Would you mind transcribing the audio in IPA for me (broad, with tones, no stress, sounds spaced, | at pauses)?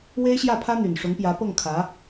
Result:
w e˥ ɪ̯ ɕ j ä˥˩ pʰ ä˥ n̪ y˨˩ n ʂ ʊ˧˥ ŋ p j ä˧˥ p ɤ˥˩ ŋ kʰ ä˧˥